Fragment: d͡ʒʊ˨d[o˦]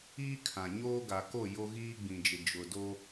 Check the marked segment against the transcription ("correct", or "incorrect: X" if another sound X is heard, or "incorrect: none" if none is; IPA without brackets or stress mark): correct